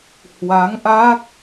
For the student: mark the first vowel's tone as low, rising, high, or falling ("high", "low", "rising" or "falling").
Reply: rising